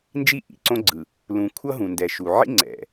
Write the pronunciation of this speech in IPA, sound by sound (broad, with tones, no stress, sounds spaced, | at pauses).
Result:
n d͡ʒ i˦ ʔ ḭ˨ ǀ õ˦ ɡ͡ǀ ɯ˨ | l ũ˨ kʷʰ ʌ˦ ɦ ũ˨ n d ɛ˨ ʃ u˨ ʕ ḭ˦ ŋ͡ǀ ɛ̰˨